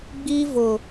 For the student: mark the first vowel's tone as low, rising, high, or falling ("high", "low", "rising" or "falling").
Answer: high